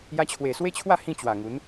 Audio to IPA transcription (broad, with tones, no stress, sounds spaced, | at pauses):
j a˧ t͡ɕʰ w e˨˩ s w e˦ t͡ɕʰ w a˥˧ h ĩ˥˧ t͡ɕ w a˨˩ ŋ u˨˦ n